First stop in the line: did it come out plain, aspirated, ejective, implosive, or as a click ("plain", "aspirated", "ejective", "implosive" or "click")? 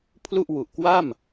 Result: aspirated